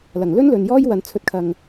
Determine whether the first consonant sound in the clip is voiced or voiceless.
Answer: voiced